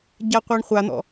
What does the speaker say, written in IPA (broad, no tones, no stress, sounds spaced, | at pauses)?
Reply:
ɟ a qʷ a ɳ χʷ a n̪ ɔ̰